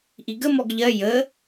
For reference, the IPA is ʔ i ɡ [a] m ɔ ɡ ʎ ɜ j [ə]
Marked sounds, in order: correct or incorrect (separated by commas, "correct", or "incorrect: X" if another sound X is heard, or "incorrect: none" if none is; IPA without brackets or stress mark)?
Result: incorrect: ə, correct